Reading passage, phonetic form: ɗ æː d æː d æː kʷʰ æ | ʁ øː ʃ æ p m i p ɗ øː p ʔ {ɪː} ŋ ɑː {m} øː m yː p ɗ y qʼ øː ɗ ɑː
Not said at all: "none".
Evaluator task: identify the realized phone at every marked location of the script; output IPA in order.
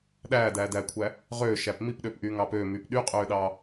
yː, p

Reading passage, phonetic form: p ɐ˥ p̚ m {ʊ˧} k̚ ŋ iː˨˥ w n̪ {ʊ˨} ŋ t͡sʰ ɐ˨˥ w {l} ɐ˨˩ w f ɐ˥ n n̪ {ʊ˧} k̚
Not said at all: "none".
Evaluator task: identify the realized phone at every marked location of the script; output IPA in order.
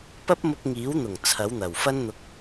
ʊ˧, ʊ˨˩, n̪, ʊ˧

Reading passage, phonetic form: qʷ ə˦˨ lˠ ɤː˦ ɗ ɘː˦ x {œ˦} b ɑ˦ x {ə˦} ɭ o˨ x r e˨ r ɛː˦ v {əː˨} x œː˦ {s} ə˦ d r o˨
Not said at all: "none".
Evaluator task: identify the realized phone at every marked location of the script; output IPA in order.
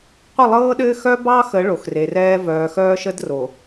œ˦, ə˨˦, œː˨, ʃ

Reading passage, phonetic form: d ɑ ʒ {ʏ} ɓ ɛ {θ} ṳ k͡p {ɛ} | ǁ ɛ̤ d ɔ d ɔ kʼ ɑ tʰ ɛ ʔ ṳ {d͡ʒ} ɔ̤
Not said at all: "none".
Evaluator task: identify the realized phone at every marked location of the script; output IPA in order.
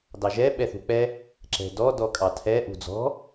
ɛ, θ, ɛ, d͡z

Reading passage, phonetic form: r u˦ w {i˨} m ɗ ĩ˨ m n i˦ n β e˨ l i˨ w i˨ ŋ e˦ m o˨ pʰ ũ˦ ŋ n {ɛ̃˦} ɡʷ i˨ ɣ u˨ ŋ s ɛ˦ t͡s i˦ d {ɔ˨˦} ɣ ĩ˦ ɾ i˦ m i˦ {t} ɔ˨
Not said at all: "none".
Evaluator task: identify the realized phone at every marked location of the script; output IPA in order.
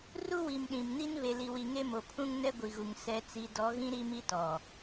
i˨, ɛ˦, ɔ˨˦, t

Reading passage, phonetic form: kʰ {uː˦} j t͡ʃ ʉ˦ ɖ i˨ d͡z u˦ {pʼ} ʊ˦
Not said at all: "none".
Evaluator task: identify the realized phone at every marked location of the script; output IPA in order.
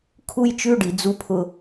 u˦, pʰ

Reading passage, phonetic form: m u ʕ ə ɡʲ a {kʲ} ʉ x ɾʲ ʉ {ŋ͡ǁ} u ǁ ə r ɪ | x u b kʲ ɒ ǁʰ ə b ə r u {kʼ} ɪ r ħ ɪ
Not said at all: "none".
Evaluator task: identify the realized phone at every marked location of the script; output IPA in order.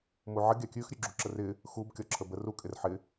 kʲ, ɡ͡ǁ, kʼ

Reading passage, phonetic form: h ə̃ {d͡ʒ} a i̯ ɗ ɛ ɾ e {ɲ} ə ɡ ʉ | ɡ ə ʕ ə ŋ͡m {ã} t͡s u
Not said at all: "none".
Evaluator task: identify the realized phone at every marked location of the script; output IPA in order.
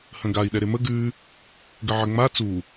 ɡ, m, a

